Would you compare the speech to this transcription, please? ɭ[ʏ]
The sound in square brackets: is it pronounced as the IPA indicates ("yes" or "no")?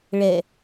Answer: no